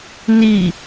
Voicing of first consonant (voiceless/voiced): voiced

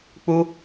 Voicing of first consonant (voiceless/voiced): voiceless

